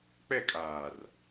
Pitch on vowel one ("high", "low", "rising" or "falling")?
falling